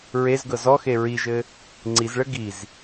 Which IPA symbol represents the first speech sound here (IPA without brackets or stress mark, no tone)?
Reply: ɹ